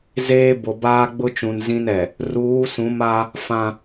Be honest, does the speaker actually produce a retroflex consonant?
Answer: no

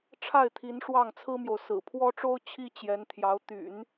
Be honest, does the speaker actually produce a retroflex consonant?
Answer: yes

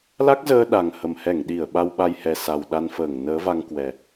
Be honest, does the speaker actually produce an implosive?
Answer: yes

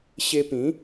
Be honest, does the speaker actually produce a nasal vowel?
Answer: yes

